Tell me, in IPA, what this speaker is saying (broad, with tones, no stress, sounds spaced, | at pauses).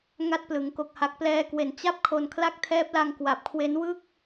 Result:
ŋ a˦˥ t̚ p l ɯ˩˦ ŋ k o˨˩ k̚ h a˨˩ k̚ p l ɛː˧ k w e˨˩ n t͡ɕ a˥˩ p̚ kʰ o˧ n kʰ l a˥˩ k̚ tʰ ɛː˦˥ p̚ l a˧ ŋ k w a˨˩ p̚ kʰ w e˦˥ n w ɯ˥˩ k̚